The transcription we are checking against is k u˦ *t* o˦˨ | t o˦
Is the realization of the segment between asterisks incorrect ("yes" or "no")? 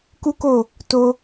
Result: yes